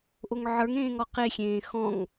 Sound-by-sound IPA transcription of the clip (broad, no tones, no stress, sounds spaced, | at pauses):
ʔ o ŋ ʕ ə˞ ŋ ẽː ŋ ɔ q e xʲ ẽː x ɔ̃ ŋ